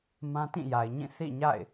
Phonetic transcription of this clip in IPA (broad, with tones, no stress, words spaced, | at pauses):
mã˦tĩ˦˨ja˨ɪ̯ɲĩ˦˨ θḭ˦˨ɲa̰˦˨ɪ̯